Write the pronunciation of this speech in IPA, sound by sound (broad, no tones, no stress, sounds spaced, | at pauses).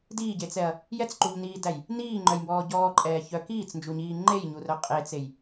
d iː ɟ e t͡s ɛ ɐ̯ | j ɛ t͡s ǃ u ʎ n iː d æ j | n iː ŋ͡ǃ œ j m b ɔː ɟ ɔː ǃʼ ɛː ç œ k iː t͡s n d͡ʒ u ɲ iː ŋ͡ǃ e j ɲ u r œ qʼ e t͡s e j